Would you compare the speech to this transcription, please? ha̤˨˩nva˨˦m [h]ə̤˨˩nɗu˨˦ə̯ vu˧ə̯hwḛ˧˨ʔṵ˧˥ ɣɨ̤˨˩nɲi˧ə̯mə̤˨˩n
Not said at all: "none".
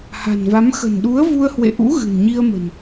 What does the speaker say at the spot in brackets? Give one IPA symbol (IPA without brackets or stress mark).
x